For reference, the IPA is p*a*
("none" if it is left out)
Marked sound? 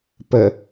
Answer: ə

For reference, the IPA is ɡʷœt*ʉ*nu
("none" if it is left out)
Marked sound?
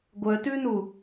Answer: ʉ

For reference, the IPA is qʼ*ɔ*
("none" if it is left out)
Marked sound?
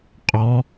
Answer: ɔ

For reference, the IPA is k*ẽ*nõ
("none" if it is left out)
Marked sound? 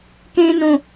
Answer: ẽ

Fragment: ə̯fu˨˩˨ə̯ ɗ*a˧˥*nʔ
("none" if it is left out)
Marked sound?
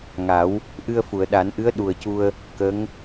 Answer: a˨˩˦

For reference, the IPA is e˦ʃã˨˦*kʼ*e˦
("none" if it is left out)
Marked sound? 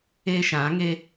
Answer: ŋ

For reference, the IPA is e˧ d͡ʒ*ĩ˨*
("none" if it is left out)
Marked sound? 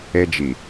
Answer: i˨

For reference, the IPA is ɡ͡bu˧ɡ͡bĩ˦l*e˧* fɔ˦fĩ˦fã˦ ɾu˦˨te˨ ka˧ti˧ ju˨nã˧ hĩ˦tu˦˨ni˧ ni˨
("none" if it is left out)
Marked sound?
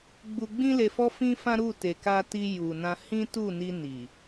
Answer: e˧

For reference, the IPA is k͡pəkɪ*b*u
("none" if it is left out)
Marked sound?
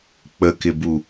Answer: b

